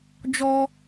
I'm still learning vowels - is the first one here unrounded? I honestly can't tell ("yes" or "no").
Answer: no